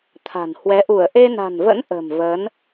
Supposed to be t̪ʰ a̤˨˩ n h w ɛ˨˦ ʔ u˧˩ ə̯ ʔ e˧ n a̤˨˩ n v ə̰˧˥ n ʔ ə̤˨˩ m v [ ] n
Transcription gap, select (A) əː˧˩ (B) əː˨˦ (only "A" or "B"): B